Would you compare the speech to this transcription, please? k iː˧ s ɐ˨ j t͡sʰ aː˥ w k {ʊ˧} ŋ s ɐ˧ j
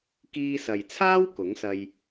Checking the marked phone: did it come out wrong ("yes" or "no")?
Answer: yes